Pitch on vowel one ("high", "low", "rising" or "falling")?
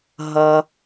low